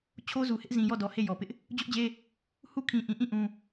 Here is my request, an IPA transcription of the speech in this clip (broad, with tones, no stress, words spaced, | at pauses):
t͡ɕʰo˦zu˨hɪ˦ʔ zĩ˨jɔ˦˨dɔ˨ he˦˨jɔ˨pɪ˦ʔ | d͡ʑʊ˦ʔd͡ʑe˦ | hu˦kʰĩ˨ʔĩ˨ʔĩ˦˨ ʔũ˦